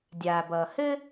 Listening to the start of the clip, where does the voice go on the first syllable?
low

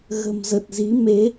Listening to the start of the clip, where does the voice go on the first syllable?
low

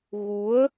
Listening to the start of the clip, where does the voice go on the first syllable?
rising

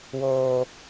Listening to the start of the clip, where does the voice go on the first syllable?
low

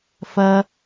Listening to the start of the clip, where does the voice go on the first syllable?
high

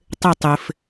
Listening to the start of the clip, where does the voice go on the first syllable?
falling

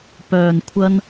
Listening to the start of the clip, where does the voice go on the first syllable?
low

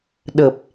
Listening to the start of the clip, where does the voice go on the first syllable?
low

